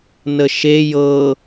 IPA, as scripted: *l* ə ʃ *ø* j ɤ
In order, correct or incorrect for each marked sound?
incorrect: n, incorrect: e

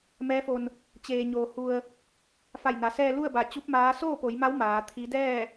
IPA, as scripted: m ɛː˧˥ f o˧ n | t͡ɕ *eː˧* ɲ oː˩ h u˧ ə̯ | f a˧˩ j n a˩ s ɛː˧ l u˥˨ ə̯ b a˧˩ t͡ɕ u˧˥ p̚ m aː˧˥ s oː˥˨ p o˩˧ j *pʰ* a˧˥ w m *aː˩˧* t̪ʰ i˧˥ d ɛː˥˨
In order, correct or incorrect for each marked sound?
incorrect: eː˩, incorrect: m, correct

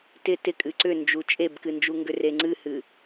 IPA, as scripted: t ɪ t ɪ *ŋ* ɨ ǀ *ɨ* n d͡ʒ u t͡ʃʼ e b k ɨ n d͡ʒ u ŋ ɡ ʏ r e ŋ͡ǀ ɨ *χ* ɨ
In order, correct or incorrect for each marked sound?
incorrect: kʼ, incorrect: ʏ, incorrect: h

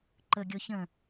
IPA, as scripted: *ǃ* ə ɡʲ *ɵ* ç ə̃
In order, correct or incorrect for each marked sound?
correct, incorrect: ɔ

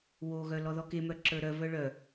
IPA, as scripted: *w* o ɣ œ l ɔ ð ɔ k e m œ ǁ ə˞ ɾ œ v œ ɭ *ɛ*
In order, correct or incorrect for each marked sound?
correct, incorrect: œ

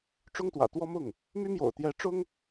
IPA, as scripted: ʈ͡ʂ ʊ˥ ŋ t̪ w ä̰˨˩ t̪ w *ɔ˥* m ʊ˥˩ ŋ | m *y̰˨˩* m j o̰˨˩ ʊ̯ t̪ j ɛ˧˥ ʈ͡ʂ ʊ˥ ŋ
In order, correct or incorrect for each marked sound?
correct, incorrect: y˥

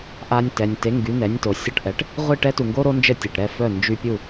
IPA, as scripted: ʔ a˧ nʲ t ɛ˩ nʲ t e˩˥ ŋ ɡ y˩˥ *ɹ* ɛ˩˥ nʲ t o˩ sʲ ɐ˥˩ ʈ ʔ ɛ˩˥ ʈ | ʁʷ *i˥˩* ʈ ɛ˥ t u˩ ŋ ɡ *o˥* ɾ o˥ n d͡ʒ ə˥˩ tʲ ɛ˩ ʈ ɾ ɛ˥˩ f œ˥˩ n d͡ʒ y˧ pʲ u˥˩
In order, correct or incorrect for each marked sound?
incorrect: n̪, correct, correct

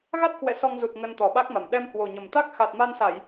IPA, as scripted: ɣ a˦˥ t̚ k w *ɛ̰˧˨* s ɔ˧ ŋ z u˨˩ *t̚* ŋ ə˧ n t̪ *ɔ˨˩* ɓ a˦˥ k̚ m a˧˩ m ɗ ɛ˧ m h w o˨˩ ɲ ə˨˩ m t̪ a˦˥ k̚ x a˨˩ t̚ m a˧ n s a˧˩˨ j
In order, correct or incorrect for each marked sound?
correct, correct, correct

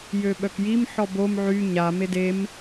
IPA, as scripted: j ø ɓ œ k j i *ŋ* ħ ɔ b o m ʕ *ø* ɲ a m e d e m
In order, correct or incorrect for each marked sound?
incorrect: m, incorrect: y

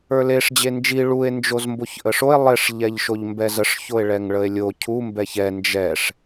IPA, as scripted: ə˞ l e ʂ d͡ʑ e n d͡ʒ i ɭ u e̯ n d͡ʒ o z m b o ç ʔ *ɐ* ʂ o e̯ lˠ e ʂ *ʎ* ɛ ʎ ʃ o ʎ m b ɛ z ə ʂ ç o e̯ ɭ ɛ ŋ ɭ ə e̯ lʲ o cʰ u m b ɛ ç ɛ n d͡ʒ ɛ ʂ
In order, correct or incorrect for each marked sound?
incorrect: ə, correct

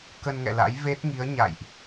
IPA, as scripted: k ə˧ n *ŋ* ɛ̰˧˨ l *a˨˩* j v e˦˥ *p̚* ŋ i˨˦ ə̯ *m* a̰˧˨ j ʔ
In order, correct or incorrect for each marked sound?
correct, incorrect: a̰˧˥, incorrect: t̚, incorrect: ɲ

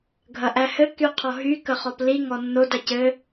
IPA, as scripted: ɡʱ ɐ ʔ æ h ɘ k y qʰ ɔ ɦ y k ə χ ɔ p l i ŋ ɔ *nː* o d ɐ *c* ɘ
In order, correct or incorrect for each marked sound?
correct, correct

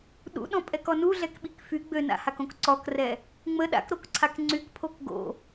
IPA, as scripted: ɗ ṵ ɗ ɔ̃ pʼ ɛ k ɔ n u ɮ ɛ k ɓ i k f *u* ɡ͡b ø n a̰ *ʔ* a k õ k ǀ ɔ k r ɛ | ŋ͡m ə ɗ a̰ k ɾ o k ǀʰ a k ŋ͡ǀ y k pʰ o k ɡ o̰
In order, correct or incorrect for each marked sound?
incorrect: y, incorrect: h

